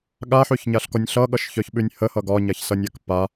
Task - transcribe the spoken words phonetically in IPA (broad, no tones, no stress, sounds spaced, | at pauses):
ɠ a ħ ʉ ç ɲ a ɬ k ɔ nʲ ɬ ʌ ɠ ʌ ʃ ç œ ç ɓ ʉ nʲ h ə h ʌ ɡ ɒ ɲ a ç s ʌ nʲ a k p a